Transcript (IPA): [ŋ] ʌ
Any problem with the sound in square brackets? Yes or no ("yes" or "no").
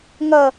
no